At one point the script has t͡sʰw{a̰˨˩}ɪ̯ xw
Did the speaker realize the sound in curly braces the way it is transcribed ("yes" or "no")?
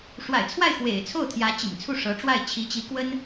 no